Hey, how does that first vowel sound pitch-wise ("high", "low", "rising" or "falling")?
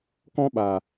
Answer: high